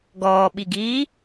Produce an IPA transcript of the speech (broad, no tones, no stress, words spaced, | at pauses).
ɡɔːɓiɡiː